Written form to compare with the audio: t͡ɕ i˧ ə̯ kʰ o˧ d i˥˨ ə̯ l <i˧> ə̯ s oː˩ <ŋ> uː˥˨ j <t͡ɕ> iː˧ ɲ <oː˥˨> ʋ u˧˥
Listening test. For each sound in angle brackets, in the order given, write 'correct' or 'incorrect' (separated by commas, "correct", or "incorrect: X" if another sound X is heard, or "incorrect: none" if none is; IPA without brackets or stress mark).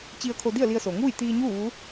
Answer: correct, correct, incorrect: t̪, incorrect: uː˥˨